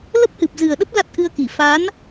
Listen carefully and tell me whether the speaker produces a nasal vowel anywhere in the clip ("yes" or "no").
no